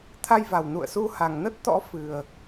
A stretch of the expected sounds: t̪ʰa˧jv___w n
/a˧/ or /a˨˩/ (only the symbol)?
a˨˩